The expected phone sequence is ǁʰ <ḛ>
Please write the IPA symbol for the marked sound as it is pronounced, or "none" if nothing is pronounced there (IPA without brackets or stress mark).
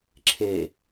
e